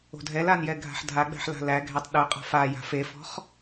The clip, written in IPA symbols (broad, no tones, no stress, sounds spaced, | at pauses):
o̤ dʱ ɛ l a n j ɛ ɡʱ a̤ ħ dʱ a ɡ͡b æ̤ ħ l a̤ l æ ɡʱ æ tˤ ɗ ʊ qʼ a̤ f a j a̤ f e f ɔ̤ χ